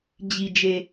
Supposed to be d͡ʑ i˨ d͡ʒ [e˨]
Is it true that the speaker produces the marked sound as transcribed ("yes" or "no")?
yes